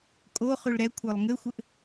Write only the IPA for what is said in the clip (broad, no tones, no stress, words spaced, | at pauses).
kʼoχʉɭ ɾɛ kʷʰə˞lˠŋɘxʷɘʔ